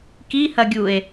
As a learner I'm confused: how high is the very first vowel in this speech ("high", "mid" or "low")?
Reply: high